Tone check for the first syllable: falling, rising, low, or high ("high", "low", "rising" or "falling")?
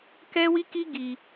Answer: high